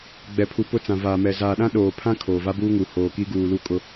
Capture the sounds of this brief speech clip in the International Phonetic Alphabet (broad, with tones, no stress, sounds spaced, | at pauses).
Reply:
ɡ͡b ɛ˨ pʰ u˨ p ʊ˦ t͡s ã˨ v aː˨ m ɛ˨ z aː˨ ɗ ã˦ ɗ oː˨ pʰ ã˦ kʰ oː˨ v a˦ b uː˦ ŋ u˨ h oː˨ k i˦ ɡ uː˨ l u˦ kʼ ʊ˦